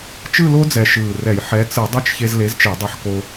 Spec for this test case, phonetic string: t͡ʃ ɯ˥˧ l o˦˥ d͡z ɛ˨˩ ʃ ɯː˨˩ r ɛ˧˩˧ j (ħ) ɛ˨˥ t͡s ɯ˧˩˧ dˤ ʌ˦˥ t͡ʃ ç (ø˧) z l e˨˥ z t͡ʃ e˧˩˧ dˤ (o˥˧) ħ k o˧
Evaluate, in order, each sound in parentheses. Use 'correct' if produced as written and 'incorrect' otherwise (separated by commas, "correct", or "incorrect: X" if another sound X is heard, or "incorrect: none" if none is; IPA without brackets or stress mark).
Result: correct, incorrect: e˧, incorrect: o˧